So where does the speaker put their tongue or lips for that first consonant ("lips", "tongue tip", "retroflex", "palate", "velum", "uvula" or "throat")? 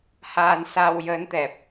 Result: throat